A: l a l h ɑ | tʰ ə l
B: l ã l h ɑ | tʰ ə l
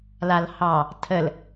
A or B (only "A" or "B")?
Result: A